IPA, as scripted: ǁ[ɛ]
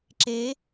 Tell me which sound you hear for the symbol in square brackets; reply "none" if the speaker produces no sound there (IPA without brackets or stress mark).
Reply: e